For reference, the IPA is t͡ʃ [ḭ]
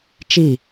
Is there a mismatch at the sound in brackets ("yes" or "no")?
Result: yes